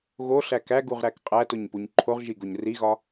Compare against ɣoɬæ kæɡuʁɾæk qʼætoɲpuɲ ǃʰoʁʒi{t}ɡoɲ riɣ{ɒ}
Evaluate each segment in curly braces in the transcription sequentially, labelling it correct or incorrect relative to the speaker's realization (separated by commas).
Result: incorrect, correct